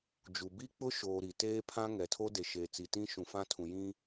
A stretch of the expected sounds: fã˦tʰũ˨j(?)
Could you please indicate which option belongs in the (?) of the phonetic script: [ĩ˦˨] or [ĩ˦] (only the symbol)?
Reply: ĩ˦